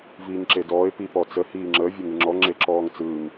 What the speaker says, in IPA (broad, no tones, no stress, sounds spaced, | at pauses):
v iː ŋ ǁ e d ɔː ɪ̯ p i p ɔ t͡s ə h iː ŋ͡ǁ əː vʲ e ŋ ɯ ŋ͡ǁ ɔ ŋ͡ǁ e ǁ ɔː ŋ t͡s ɯː ŋ